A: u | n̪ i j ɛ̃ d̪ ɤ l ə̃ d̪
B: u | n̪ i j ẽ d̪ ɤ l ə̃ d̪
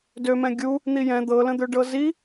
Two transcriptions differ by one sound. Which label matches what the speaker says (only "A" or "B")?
A